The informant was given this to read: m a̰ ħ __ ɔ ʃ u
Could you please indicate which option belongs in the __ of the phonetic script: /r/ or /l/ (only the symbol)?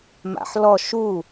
l